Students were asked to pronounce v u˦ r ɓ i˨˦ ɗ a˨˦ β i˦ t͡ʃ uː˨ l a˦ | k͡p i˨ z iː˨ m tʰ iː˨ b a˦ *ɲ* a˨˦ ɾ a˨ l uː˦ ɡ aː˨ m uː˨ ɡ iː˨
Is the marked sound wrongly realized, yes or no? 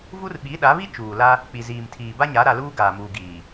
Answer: no